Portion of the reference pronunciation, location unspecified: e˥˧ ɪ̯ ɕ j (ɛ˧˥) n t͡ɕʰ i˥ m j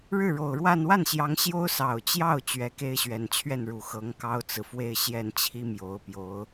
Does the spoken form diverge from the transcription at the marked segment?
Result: yes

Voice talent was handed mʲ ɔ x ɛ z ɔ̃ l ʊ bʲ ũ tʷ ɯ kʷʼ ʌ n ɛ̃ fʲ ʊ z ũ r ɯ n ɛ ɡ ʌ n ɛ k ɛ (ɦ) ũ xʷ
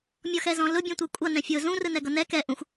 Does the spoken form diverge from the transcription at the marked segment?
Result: yes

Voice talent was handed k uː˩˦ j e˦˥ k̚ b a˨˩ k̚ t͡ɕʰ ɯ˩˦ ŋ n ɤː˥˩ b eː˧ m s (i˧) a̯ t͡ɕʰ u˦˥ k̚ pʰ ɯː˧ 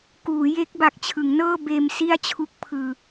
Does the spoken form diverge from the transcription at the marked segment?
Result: yes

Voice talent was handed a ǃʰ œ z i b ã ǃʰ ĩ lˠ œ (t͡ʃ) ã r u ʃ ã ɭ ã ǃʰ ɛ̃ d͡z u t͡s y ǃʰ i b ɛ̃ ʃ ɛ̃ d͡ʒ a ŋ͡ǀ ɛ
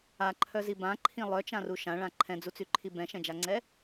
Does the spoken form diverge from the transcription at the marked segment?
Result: no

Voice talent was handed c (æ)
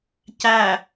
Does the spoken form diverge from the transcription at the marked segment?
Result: no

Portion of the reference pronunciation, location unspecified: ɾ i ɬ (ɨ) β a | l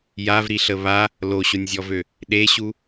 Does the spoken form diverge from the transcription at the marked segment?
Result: yes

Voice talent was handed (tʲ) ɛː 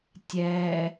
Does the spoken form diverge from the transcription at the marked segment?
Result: no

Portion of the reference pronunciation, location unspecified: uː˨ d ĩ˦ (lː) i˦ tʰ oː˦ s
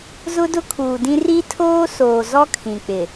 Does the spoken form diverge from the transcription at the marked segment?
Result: yes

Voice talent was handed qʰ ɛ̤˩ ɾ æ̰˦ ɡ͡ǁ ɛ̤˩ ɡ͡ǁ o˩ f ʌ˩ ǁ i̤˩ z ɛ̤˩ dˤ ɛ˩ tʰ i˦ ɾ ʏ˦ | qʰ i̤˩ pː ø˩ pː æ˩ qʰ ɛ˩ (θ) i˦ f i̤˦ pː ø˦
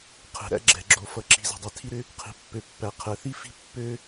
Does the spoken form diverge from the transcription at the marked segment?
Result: no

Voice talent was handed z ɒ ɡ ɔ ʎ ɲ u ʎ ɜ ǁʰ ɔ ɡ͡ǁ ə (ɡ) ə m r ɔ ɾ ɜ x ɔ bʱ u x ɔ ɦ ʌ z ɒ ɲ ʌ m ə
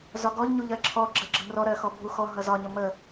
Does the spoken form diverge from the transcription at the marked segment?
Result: yes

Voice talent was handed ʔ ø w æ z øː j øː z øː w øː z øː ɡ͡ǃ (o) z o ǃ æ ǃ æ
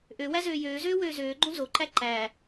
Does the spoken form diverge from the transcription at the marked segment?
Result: yes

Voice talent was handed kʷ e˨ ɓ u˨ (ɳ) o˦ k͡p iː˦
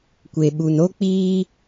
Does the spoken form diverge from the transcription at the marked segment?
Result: yes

